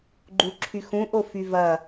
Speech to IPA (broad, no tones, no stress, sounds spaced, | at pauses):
ɡ͡ǃ u ǁʰ y x ũ ʔ o f y v ɐ